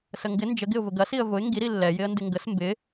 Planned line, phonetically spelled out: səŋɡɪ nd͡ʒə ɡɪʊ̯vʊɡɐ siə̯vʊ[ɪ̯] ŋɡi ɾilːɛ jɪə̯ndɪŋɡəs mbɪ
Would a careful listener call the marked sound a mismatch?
no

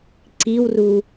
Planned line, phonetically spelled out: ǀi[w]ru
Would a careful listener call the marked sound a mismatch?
no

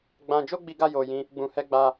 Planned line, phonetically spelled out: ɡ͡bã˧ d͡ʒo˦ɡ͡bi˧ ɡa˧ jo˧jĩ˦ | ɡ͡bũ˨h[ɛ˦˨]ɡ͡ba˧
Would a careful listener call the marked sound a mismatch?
yes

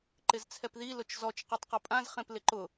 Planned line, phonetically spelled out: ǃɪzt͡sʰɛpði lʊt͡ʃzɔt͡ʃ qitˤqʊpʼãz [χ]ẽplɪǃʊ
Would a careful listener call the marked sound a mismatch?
no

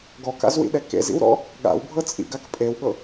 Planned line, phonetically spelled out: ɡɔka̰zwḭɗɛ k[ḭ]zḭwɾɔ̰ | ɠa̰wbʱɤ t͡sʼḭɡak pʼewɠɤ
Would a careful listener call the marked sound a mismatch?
yes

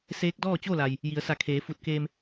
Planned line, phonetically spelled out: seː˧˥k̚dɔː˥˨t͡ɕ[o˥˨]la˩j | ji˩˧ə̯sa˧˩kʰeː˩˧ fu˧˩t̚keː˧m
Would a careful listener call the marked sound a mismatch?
no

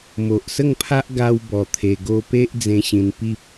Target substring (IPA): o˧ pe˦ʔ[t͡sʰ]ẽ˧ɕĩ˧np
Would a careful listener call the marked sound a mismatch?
yes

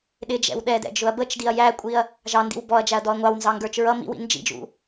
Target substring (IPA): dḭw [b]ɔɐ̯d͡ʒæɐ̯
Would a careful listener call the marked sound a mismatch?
no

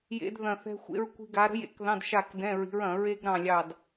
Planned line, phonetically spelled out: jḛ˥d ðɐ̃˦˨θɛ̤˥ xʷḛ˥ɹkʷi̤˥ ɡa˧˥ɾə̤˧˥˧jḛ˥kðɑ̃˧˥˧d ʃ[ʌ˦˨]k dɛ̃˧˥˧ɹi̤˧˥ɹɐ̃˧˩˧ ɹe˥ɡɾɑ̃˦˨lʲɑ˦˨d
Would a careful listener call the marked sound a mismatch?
yes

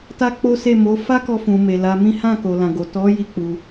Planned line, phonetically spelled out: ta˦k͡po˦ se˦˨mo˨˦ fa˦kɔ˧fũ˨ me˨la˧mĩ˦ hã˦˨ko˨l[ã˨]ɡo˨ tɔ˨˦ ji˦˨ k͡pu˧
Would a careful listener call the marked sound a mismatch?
no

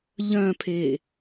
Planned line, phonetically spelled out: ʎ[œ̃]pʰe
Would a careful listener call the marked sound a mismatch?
no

